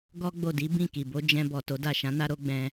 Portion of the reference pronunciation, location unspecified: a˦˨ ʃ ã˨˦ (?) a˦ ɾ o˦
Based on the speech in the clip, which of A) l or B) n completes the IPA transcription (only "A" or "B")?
B